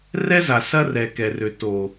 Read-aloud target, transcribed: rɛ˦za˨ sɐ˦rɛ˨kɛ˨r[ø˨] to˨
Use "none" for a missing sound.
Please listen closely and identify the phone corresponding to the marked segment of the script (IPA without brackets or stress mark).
ø˨